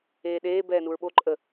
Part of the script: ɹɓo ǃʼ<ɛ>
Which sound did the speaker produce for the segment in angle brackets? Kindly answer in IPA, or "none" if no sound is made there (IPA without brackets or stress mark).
ə